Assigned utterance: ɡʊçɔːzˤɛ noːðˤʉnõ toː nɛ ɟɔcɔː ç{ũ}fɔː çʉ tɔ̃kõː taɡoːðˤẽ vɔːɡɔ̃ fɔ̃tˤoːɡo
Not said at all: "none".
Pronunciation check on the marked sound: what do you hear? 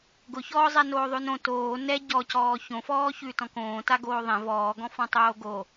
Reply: õ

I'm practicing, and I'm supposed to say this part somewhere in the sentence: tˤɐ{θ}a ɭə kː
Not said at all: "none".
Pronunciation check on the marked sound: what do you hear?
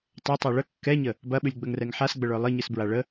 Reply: tˤ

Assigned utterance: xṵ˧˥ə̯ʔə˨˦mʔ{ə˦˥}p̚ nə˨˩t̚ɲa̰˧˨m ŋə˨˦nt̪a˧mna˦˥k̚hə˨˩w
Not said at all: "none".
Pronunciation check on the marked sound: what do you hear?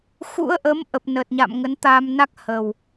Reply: ə˨˩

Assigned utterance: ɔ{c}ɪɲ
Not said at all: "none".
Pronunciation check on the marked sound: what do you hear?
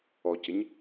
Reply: c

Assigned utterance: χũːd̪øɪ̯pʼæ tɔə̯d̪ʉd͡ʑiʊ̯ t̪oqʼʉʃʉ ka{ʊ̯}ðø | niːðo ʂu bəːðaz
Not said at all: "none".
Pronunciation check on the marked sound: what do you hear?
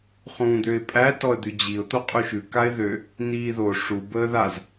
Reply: ɪ̯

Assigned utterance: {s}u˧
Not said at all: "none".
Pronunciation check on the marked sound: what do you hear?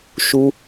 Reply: ʃ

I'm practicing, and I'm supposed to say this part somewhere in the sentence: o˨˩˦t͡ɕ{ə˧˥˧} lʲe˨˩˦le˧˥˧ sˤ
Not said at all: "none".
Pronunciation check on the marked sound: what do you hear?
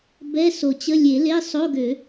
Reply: ə˧˥˧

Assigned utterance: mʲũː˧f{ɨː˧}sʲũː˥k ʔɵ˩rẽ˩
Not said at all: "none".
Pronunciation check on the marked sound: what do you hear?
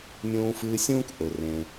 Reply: ɨː˧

